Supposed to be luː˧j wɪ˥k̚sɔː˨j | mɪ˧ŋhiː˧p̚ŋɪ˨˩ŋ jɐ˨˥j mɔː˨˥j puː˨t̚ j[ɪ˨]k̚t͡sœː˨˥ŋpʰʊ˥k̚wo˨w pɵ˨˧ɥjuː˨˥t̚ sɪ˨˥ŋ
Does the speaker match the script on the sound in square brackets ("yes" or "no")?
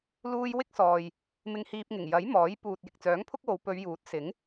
yes